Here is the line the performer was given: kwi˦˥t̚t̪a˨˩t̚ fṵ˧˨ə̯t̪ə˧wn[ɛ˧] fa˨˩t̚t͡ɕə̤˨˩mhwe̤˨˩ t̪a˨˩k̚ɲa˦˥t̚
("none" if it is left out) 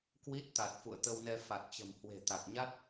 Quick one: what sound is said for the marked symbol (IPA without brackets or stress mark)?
ɛ˧